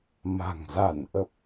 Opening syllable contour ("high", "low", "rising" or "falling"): low